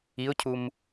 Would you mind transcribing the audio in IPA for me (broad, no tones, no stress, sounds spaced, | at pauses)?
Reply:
i ʊ̯ cʰ u m